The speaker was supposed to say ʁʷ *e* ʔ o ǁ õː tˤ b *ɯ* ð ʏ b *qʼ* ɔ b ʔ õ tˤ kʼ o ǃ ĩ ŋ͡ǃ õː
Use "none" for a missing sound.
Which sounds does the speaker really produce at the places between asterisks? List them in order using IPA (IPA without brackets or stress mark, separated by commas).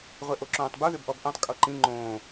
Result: e, u, ʔ